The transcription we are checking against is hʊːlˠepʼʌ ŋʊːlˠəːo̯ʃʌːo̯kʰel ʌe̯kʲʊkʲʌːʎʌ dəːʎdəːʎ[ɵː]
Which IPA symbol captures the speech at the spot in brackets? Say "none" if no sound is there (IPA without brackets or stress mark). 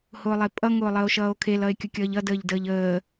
əː